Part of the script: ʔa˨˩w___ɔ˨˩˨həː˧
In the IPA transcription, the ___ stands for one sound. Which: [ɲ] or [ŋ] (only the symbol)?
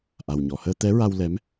ɲ